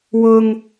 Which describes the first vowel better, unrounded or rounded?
rounded